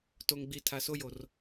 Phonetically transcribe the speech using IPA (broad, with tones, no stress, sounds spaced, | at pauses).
t o˨ ŋ ɡ͡b i˨ tʰ a˨ s o˦ j o˨ r